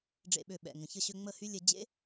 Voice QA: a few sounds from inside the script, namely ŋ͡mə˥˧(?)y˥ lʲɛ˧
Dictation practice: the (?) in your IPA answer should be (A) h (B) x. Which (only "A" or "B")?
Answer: A